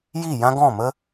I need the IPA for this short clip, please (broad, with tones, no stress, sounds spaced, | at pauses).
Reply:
j i˦˨ j ã˦ ɡ ɔ̃˦˨ m ə˦